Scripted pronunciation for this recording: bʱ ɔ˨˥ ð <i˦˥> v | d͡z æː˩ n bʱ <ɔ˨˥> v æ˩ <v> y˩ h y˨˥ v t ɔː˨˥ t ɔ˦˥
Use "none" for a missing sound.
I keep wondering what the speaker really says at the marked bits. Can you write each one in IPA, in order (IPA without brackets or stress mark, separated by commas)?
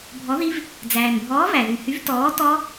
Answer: i˦˥, ɔː˨˥, ð